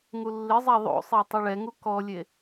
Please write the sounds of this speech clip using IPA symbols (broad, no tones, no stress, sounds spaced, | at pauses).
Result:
ŋ u lː ɪ zˤ a ðˤ o̰ sˤ e tˤ ɪ ɭ ɛ ŋ u k ɔ lʲ e